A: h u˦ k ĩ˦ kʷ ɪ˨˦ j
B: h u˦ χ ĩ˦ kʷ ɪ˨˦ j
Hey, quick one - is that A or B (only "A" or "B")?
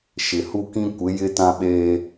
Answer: A